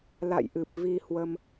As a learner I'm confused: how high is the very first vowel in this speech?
low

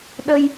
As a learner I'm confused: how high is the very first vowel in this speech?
mid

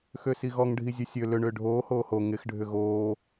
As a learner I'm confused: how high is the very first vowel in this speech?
mid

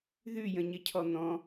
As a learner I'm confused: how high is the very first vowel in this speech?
high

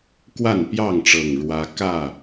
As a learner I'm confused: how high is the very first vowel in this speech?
low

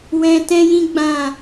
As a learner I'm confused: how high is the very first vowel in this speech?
mid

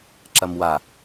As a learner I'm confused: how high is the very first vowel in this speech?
low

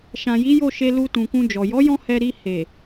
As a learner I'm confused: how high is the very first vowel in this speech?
low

